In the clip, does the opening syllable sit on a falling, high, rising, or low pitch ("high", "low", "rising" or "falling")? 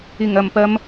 low